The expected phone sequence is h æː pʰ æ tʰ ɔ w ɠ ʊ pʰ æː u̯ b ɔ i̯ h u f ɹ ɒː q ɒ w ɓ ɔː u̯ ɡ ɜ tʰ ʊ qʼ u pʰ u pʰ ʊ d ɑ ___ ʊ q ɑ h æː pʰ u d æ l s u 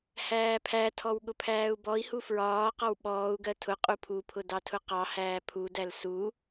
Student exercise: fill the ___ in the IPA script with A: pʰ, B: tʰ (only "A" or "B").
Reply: B